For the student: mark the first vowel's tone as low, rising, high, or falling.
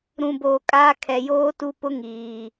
low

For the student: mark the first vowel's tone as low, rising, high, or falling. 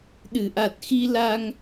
low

